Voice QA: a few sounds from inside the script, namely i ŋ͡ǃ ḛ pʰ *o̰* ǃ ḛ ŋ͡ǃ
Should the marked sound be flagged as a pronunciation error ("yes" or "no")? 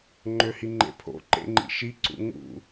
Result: no